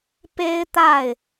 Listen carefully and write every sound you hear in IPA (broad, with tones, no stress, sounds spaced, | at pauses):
p e˥ ɪ̯ t̪ a˥˩ ɪ̯